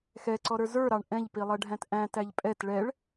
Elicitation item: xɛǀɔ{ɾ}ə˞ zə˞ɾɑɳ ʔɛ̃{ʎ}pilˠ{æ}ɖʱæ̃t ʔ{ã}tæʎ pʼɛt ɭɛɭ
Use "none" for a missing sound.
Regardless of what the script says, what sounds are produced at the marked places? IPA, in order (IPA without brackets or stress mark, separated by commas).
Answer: ɾ, ʎ, ɛ, æ̃